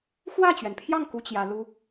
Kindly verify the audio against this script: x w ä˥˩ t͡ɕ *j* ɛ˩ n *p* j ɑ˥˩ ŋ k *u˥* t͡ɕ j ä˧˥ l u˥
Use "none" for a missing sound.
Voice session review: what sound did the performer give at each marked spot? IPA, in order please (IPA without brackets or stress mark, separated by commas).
ɥ, pʰ, u˥